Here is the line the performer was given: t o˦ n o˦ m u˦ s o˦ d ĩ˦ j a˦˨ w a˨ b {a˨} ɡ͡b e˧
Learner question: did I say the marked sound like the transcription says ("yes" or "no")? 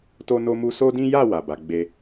no